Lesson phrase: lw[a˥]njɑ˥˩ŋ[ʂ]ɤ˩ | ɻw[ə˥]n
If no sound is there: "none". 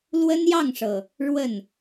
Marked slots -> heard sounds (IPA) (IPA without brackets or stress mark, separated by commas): ə˥, ʂ, ə˥˩